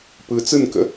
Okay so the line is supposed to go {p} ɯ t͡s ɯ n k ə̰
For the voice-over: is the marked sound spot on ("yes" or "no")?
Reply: yes